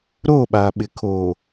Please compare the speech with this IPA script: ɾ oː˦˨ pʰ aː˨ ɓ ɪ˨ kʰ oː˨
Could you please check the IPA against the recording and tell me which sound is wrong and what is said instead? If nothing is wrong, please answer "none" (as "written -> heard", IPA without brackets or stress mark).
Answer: pʰ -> ɓ